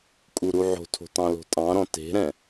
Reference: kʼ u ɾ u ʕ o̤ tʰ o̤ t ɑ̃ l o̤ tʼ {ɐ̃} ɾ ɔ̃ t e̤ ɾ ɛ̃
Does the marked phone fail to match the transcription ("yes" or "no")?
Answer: yes